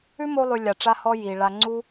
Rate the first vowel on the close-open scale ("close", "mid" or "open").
close